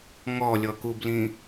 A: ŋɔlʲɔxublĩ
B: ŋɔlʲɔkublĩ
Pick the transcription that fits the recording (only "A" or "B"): B